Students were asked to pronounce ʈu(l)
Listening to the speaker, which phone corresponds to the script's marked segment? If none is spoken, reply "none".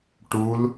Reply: l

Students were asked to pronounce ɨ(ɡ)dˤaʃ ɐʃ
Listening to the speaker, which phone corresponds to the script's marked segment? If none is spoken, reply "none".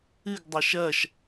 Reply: ɡ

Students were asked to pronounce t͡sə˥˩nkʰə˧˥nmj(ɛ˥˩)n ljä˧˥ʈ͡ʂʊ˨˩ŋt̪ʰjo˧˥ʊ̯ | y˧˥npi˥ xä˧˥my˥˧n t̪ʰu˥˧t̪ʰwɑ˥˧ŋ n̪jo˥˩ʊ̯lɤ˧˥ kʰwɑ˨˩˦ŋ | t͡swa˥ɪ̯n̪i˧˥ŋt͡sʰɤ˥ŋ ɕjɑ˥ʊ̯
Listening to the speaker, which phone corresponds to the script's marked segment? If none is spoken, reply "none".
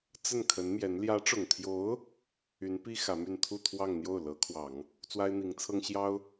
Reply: ɛ˧˥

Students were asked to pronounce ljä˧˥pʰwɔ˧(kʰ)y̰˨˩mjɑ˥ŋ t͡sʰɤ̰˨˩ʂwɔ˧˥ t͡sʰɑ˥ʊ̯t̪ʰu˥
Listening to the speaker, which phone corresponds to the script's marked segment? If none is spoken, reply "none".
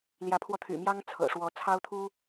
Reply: t̪ʰ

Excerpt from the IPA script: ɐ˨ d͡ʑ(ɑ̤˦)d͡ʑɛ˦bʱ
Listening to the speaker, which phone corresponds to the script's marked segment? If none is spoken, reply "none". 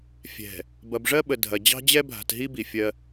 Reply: ɑ̤˦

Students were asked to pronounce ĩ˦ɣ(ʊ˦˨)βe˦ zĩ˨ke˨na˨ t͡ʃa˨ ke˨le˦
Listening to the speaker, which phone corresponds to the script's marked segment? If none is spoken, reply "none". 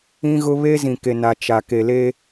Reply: ʊ˦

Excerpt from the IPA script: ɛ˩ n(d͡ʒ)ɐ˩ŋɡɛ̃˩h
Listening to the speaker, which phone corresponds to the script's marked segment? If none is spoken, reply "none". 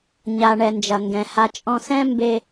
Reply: d͡ʒ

